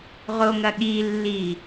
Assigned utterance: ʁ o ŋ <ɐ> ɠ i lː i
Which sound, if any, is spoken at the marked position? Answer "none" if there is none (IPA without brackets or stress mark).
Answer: ɐ